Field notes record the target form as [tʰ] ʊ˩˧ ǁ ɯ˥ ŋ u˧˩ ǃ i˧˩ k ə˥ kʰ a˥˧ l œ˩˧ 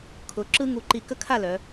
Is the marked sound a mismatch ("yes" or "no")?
yes